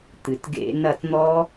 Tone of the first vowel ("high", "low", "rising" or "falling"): low